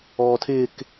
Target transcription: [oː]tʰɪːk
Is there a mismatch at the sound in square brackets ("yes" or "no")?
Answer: yes